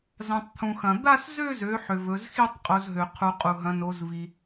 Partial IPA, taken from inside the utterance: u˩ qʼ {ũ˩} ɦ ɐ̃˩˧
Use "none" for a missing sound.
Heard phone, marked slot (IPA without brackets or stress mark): u˩